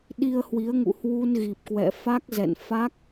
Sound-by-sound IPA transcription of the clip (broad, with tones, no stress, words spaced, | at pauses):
ɗi˧ə̯hwi˨˦ə̯ ŋṵ˧˨hwu˧nɣi˨˩p̚kwɛ̰˧˨ fa˦˥k̚ zɛ̰˧˨n fa˦˥k̚